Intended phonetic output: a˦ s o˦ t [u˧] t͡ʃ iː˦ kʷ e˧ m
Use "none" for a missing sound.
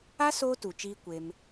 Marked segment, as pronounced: u˨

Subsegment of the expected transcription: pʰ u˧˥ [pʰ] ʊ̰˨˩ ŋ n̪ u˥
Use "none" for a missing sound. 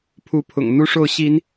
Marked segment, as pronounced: pʰ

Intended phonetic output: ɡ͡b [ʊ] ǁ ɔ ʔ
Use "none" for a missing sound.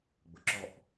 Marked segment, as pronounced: ʊ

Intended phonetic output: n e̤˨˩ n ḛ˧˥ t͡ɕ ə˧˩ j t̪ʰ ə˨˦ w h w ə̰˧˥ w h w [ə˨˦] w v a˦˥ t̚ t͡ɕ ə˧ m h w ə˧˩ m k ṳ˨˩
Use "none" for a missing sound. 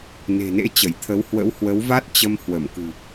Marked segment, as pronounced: ə˨˦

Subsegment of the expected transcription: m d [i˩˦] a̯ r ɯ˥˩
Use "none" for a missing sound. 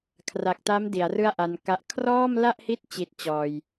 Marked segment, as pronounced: i˩˦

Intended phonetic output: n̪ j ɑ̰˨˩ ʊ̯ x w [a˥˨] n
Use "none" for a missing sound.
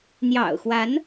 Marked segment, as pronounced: a˨˦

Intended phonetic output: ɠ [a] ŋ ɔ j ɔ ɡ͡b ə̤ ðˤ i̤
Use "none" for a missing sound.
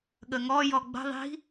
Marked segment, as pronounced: ə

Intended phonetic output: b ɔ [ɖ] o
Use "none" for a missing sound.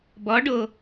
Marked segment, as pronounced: ɖ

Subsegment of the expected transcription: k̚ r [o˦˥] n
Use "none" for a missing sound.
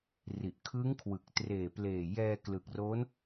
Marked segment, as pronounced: o˦˥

